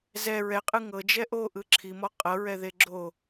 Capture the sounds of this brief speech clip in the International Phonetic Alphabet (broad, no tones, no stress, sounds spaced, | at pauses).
z ɛ ɹ ɛ qʼ ɯ ŋ ɤ d͡ʒ ɛ ʔ o ʔ ɯ ǁʰ i m ɔ qʼ ɤ ɹ ɛ ð e ɡ͡ǁ o